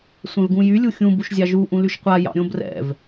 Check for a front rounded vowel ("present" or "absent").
present